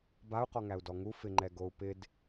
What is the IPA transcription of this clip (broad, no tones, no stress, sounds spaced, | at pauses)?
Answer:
b a u̯ q ɔ ŋ æ u̯ d ɔ ŋ u f ɪ ŋ͡ǃ ɛ ɡ o u̯ p ɪ d